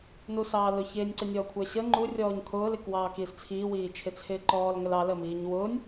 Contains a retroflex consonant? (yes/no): no